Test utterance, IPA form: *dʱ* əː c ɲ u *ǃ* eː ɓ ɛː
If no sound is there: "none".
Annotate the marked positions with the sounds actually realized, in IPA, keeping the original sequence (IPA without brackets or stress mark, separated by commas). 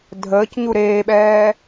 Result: dʱ, ɾ